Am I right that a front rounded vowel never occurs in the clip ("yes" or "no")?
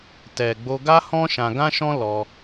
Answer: yes